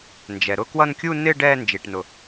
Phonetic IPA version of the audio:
nd͡ʒɛ˩ ɾʊ˥˧ kwʌ˥˧n kʲu˥˧nɪ˥˧ ɖɛː˥˧nd͡ʒi˩ʈnʊ˩

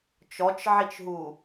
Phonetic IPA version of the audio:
t͡ʃɔt͡ʃʕit͡ʃɦu

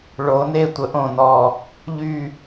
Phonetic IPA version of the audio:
ɭo˩˧ ne˦˨tʷə˩˥ʔõ˨˩ nɔ˨˩ | ʎy˦˨

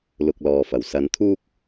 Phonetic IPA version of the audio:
lʊ˨k̚lɔː˨fɐ˨˩w sɐ˨˧nt̪ʰuː˥k̚

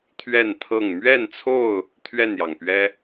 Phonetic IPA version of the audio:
t̪ʰɥɛ˥˨nt̪ʰɤ˥˨ŋ mɥɛ˥˨nt͡sʰo˥˨ʊ̯ | t̪ʰɥɛ˥˨njɑ˩ŋpɥɛ˦

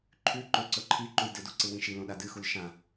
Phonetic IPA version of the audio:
ǃʰʉ ǃɵ ǀɵǃʰiǃuj dɨdu ǀɨwĩʃilõ ɗadɨxul ʃã

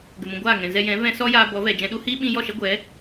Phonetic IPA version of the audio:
ɡə˨mũ˨ ɡʷaː˦˨ŋɛ̃˨zɛ˧jɛ̃˨˦ vɛ̃˧ sɔ˦jaː˧ bɔ˨˦vɛ˨ d͡ʒɛ̃˧ɗu˦ hiː˦ɓĩ˧jɔ˦˨ʃɛ˦ ɡʷɛ˨˦

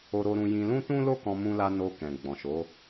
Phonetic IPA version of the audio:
o˧ɾo˧ɾũ˧ jĩ˧lũ˦tũ˦ lo˦kɔ̃˧ mũ˧la˧ no˧ kɛ̃˨ɡ͡bɔ̃˨ʃo˨˦

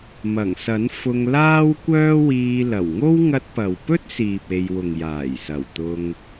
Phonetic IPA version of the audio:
mɐ˨˩ŋsɐ˨˥n fʊ˧ŋ laː˥w kʷœː˥wiː˧ lɐ˨˩wŋo˥w ŋɐ˧t̚pɐ˨wpɵ˥t̚siː˨p̚ e˧j wʊ˨ŋ jaː˨˩jsɐ˨˩w t̪ʊ˧ŋ

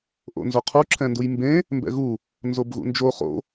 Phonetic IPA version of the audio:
ʔo̰nzoqʰu ǁʰɛ̃ndujmbẽ | mbɛ̰ɣu | nzobɣṵnd͡ʒo χo̰

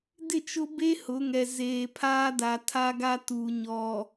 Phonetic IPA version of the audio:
dɪ˦˨t͡ʃʊ˦be˦ hʊ˨˦ŋɛ˨ zeː˨pʰaː˦da˨ tʰa˦ɡa˦ tu˨ ɲɔ˨

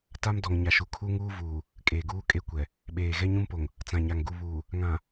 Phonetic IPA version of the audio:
ta˦mdɔ˨ŋ ɲa˨ʃu˨ kʰu˦ŋuː˦vuː˨ | kʼeː˨ɡuː˦kʼe˦kʷɛ˨ | ɓeː˨ ɣɛ˦ɲũ˦mpo˨ŋ | t͡sã˨ ɲa˨ŋɡu˨ βuː˨ | ŋã˨

